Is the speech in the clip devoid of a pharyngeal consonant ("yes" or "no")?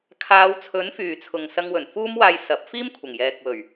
yes